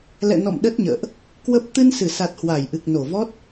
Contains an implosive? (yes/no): yes